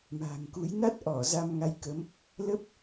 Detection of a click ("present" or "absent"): absent